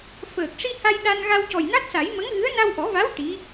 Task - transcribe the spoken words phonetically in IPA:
f əː˨˩ k̚ ʂ i˧ h a˧ j ɗ a˧ n ɣ a˧ w c ɔ˨˩ j n a˦˥ t̚ s a˨˩˦ j m ə˧˥ ŋ ɣ ɨ˧˥ ə̯ n a˧ w ʔ ɔ˨˩˦ v a˧˥ w ʈ i˧˥

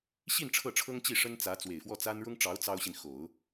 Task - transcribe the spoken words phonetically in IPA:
ɕ i˥˧ n ʈ͡ʂʰ ɤ˥˩ ʈ͡ʂʰ ɤ˥ ŋ t͡ɕ i˥˩ ʂ ə˥ n t͡s ä˧˥ t͡s w e˨˩ ɪ̯ f w ɔ˥˩ t͡s a˥ n ɻ ʊ˥ ŋ ʈ͡ʂ ɑ˧˥ ʊ̯ t͡s ɑ˥ ʊ̯ ɕ i˨ n x o˨˩˦ ʊ̯

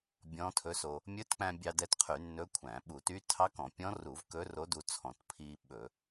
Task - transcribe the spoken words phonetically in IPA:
bʲ ɔ̃˧˥ tʰ ɵ˧˥ s o˧ | mʲ ɵ˧˥ t k͡p æ̃˧ bʲ ɑ˧ d ɛ˧ t qʰ y˧˩˧ nː ɵ˧˥ kʷʰ æ̃˧˩˧ ɓ u˧˩˧ t y˧˥ tʰ ɑ˧˥ k ɔ̃˧˩˧ pʲ ɔ̃˧˥ r u˧˩˧ v k ɵː˧˥ r o˧˥ d u˧ t͡sʰ ɔ̃˧˩˧ t pʰ iː˧ ɓ ɵ˧˩˧

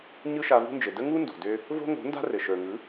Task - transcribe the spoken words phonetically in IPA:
ɲ ɯ˦ ʃ a˧ v ṳ˦ n d͡ʒ ɘ˨ d ə˦ ŋ u˦ n d o̤˨ d ø˦ | v o̤˦ ŋ o̤˨˦ n d a̤˦ r ɘ˨ ʃ ə˞˨ ŋ ɯ˨˦

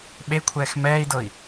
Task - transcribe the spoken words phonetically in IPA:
ɓ e kʷʰ ɛː x m ɛː i̯ d ɤ i̯

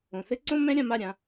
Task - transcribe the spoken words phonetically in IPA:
õ˨ θ ɘ˦ ǀ õ˦ m ɛ̃˦ ɾʲ ã˧ m a˦˨ ɾʲ ã˧

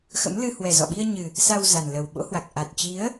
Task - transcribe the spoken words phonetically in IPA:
x ə̰˧˥ m l ɨ˧ h w ɛ˨˩ z ɔ̰˧˨ ɓ i˧ ə̯ ɲ ɨ˨˩ | s a˧ w z a˨˩ n l ə˨˩ w ɓ o̰˧˥ h w a˨˩ k̚ ʔ a˨˩ t̚ t͡ɕ i˨˦ ə̯

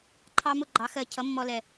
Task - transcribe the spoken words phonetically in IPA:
ǃʰ ɑ˧ m ʊ˥˨ ɡ͡ǃ ɑ˩˧ x ɜ˨˩ cʰ ʌ˨˥ mː ɔ˧ l ɛ˨˩

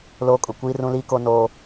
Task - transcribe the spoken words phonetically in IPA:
l oː˦ kʼ ʊ˨ kʷ iː˦ r ũ˦ l iː˦ k o˦ n oː˦

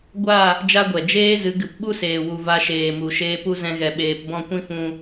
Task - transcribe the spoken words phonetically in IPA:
ɡʷ a˦˨ | d͡ʒ a˦ ɡʷ ɛ˨ d͡ʒ eː˦ z ɨ˨˦ ɡ ɨ˨ p ɓ u˦ s eː˨ w u˨ v a˧ ʃ eː˨ m u˨ ʃ eː˧ p u˦ z ɛ̃˧ ɣ ɛ˨ ɓ eː˨ p b ɔ̃˦˨ kʷ ĩ˦ f ũ˧

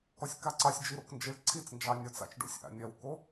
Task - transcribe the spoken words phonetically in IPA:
k ɔ sʲ k a ǀ ɑ sʲ d͡ʒ i ɾ o k n d͡ʒ i ɭ ǀʰ i t͡s n d͡ʒ ɑ nʲ ɔ t͡s a̰ t͡ʃ ɖ o̰ sʲ ʔ a̰ nʲ ɐ w k o

